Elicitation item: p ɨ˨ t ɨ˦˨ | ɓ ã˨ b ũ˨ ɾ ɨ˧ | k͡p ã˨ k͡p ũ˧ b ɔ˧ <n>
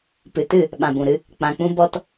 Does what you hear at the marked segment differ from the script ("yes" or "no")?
yes